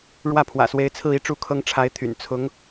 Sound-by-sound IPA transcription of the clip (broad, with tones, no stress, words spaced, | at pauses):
ɻwä˥˩pʰwä̰˨˩swe˧˥ɪ̯ t͡sʰɹ̩˥˧i˥˧ʈ͡ʂu˥˩kʰɤ˥ŋ ʈ͡ʂʰa˧˥ɪ̯t̪ʰy̰˨˩n t͡sʰʊ˧˥ŋ